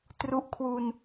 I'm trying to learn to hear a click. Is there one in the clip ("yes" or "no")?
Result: no